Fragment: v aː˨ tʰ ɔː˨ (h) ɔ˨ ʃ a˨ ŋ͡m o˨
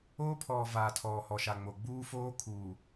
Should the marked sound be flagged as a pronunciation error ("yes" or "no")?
no